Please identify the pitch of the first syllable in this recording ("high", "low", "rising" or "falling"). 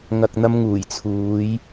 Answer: low